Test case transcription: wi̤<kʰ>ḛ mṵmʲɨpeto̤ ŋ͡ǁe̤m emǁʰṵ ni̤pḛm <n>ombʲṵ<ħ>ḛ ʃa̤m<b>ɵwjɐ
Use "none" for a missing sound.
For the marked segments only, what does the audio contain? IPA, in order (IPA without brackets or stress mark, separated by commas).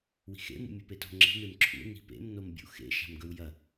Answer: x, n, x, ɡ